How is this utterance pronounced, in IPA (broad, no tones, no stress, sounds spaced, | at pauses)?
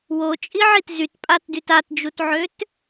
w o t͡ʃʼ i ʕ i t z y t pʼ a t d y t a t d͡ʒ u t ʕ ø t